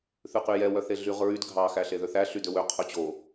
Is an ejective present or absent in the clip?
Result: absent